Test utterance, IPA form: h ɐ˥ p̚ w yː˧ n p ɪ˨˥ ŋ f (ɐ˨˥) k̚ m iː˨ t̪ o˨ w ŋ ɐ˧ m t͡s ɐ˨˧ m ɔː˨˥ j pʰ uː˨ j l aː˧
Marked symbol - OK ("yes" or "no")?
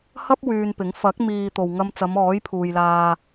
yes